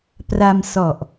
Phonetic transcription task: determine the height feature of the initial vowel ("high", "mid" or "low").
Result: low